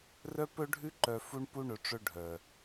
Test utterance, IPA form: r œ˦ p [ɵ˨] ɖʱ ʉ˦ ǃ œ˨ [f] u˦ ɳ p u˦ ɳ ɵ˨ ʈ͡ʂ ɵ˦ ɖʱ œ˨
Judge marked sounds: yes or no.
no, yes

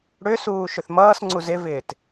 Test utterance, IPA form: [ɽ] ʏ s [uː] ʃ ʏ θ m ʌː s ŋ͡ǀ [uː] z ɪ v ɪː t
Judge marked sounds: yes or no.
yes, yes, no

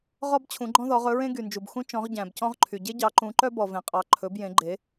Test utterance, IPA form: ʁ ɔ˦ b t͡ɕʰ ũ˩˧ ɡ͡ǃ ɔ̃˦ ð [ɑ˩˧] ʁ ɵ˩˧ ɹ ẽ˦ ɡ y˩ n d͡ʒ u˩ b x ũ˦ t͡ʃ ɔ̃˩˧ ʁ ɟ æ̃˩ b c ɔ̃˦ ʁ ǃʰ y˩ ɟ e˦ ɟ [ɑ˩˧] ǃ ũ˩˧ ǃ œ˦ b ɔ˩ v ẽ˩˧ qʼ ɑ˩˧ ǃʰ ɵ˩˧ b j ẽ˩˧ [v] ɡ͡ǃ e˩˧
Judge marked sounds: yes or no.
no, yes, no

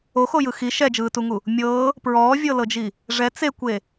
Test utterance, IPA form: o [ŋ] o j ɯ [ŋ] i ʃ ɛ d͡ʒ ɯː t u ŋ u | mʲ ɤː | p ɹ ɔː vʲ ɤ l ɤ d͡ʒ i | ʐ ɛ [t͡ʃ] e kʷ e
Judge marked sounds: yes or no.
no, no, no

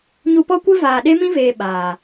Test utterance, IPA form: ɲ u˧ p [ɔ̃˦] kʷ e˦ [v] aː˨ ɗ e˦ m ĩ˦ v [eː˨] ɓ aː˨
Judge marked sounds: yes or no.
no, yes, yes

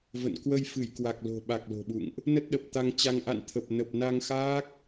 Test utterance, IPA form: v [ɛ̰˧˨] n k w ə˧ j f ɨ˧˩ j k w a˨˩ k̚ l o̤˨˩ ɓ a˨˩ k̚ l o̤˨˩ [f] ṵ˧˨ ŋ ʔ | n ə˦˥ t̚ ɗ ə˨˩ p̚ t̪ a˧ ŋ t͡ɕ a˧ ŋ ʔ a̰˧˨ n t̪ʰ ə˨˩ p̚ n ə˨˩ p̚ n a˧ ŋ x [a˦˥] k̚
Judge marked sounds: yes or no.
no, no, no

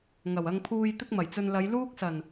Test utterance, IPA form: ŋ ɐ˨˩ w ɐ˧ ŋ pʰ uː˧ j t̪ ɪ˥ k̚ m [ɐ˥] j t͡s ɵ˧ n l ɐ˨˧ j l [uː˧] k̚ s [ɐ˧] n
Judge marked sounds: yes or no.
no, no, no

